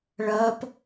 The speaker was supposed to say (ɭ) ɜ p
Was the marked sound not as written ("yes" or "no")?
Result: no